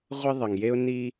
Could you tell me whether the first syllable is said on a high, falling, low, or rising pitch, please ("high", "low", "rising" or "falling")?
high